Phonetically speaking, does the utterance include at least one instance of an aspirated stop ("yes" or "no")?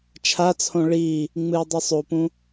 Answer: yes